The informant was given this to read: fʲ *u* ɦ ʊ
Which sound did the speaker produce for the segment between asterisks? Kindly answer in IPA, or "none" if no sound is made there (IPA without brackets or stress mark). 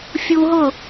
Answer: u